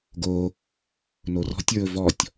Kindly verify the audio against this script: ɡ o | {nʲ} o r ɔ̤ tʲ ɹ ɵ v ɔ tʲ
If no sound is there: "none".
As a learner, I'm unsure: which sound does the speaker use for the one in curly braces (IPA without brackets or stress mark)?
n